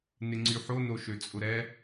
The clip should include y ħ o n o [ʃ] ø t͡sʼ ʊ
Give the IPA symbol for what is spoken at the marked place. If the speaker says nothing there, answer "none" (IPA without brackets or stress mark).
ʃ